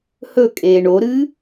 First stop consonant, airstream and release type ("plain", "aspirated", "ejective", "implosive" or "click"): ejective